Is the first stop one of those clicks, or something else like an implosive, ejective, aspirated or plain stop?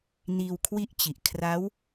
aspirated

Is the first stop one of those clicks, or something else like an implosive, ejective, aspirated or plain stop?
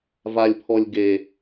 aspirated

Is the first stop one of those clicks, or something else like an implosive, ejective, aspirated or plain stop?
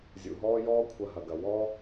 aspirated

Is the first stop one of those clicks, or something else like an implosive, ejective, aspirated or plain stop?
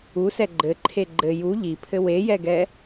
click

